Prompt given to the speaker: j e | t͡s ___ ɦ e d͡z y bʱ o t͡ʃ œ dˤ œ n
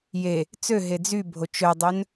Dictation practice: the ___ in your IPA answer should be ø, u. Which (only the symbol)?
ø